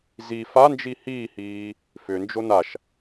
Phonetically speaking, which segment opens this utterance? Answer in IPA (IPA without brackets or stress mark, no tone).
z